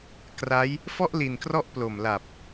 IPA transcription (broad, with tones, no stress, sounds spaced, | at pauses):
k r a˦˥ j | f ɔ˥˩ ʔ l i˨˩ n k r ɔ˦˥ ʔ p l o˨˩ m l a˨˩ p̚